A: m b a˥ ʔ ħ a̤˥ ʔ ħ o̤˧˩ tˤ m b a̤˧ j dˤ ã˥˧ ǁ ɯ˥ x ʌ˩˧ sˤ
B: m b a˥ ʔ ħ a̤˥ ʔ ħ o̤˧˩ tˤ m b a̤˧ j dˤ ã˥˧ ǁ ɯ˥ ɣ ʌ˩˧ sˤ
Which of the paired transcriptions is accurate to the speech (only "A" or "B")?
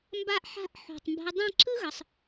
B